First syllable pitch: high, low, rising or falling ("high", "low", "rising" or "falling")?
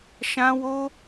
high